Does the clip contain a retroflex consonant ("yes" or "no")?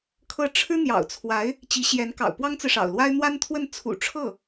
yes